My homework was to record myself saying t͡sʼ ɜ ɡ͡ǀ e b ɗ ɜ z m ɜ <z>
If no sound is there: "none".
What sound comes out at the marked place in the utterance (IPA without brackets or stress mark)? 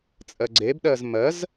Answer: z